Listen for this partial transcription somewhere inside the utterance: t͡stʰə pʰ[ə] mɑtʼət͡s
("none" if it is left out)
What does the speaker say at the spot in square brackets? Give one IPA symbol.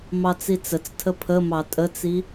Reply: ə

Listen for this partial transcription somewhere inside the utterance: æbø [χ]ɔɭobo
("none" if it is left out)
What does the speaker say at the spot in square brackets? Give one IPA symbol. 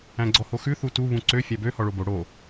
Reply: h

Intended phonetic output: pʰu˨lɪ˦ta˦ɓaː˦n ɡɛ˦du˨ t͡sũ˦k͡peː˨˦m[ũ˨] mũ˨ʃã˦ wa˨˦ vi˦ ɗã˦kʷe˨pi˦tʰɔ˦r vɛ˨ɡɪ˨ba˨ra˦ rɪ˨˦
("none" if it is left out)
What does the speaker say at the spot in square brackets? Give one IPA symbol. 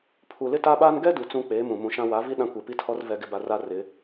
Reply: ũ˨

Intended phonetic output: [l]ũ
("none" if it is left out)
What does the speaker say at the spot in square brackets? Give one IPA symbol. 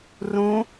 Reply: r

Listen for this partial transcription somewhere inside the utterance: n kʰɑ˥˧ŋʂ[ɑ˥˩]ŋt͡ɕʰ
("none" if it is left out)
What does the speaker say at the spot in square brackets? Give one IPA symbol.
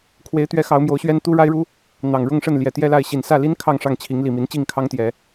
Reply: ɑ˥˩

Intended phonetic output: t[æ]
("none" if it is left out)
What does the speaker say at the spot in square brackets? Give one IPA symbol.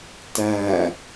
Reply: æ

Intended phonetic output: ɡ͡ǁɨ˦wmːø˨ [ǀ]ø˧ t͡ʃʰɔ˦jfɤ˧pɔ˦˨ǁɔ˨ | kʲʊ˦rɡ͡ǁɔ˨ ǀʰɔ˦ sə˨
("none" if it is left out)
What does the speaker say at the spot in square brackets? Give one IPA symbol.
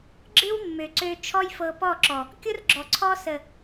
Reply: ǀ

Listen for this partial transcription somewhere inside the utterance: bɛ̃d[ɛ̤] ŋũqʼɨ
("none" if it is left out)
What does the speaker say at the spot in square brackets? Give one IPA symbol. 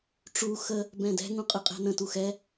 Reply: ɛ̤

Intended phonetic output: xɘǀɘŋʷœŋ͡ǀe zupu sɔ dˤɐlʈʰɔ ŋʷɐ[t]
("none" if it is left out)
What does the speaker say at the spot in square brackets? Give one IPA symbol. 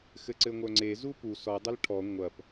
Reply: p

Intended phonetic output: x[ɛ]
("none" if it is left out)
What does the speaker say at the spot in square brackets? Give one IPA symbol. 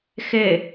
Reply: ɘ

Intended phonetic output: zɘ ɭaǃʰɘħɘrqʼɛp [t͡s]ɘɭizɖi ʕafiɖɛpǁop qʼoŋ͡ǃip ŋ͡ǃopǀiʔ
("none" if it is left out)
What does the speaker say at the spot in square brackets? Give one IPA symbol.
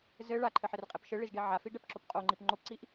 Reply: ʃ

